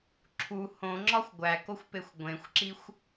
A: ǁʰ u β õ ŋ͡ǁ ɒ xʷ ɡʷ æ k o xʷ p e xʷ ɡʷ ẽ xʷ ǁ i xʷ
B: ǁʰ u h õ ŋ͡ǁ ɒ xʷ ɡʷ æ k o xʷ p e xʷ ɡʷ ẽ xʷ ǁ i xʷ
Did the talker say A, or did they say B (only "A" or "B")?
B